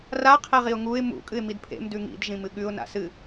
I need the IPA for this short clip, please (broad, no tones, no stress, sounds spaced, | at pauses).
r a qʰ e ʁ i ʊ̯ ŋ u ɪ̯ m ṵ kʼ ɨ ɪ̯ m i d pʰ ḛ m d ʉ ŋ ḭ d ʒ ĩ m ɨ ɠ ʉ ʊ̯ n a̰ s ɨ